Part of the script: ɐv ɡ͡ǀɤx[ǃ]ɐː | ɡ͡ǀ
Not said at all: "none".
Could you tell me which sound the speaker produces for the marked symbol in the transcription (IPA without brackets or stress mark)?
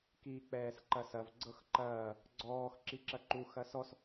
ǃ